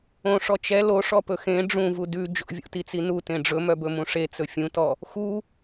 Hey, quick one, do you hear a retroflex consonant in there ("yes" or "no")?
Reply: yes